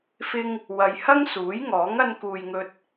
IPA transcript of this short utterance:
fɪ˧ŋ | wɐ˧j hɐ˥ŋsuː˨˥jŋɔː˨˥ŋ ɐ˧nkuː˨jŋɵ˧t̚

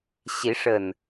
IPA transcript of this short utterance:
ɕi˨˦ʂə˨˩n

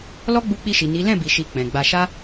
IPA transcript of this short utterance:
lɔ˦ɡ͡bu˧ k͡pi˧ʃi˨ ni˨˦ lɛ̃˦˨bi˨ʃi˨ k͡pɛ̃˨ɡ͡ba˧ ʃa˦

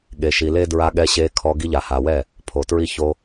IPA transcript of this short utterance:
ɠe˨ʃi˨le˦ dɹa˧ɠɛ˧ɕe˧kʰɔ˧ ɡi˧ʎa˨ha˨wɛ˦˨ | pʰo˨tɹi˦ ço˧

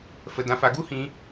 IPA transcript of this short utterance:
fə˧dã˧fa˧ ɡu˦hĩ˧

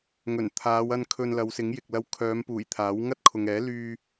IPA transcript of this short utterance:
ŋɵ˨˩n t̪ʰaː˨˧wɐ˧n kʰɵ˧nlɐ˨˧wsɪ˨˥ŋ jɪ˨k̚lɐ˧wkʰœː˨˧m puː˨˩j t̪ʰaː˨˥wŋɐ˥t̚ kʰʊ˨ŋɛː˨˥ lyː˧

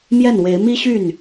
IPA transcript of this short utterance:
mjɛ˥˩nwe˧˥ɪ̯ mi˥ɕy˥˩n

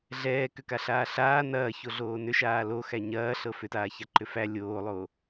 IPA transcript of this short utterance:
ɮɛːkʏkaɬaː ɬaː nɐːçoɮoː nʏʃaː loxæ ɲɐːɬɤ fʏtaːçaǃʏ fæ lʲoːlˠoː

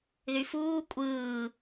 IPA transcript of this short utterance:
ðyfuː kʷʼɯː

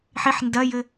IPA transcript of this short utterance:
ħiħ ndɐjɘ

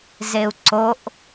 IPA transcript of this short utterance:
zeu̯ǀoʔ

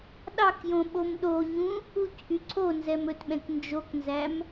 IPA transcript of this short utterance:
ɗɑkjõ ɓomɗoɲũ | ucʔy ǀʰonzɛm ɵtɓɛ̃k nd͡ʒoknzæm

